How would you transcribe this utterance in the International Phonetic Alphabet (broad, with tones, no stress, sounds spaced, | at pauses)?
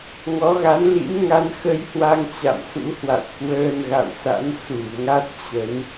ŋ ɔ˨˦ ɣ a˨˦ n l ḭ˧˥ m ŋ a˧ n x ə˧ j h w a˧ ŋ t͡ɕ a̰˧˨ m s ṵ˧˥ h w a̰˧˨ w k w əː˧ n ɣ a̰˧˨ w s a̰˧˥ n s u˧˩ ŋ a˦˥ t̚ t͡ɕ ə˨˦ n